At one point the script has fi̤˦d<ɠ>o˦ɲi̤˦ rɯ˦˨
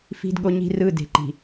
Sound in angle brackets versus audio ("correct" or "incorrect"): correct